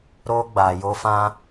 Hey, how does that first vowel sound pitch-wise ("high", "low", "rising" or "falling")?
high